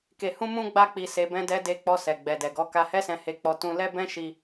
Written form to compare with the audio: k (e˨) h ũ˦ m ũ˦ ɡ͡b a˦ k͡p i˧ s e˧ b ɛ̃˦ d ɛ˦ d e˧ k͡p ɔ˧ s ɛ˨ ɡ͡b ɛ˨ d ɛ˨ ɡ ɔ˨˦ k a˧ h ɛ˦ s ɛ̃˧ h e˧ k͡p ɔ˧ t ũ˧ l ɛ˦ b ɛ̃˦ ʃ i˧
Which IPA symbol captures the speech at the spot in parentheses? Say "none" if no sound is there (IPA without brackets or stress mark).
e˧